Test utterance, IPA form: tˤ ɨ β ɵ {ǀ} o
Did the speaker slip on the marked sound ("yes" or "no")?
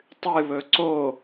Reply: no